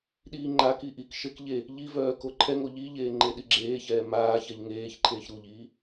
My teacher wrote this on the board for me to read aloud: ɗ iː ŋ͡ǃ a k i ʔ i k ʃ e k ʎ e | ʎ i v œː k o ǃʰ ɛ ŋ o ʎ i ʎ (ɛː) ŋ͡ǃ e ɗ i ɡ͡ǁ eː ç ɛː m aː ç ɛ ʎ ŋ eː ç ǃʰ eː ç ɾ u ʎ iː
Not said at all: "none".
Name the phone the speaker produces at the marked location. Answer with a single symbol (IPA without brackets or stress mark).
eː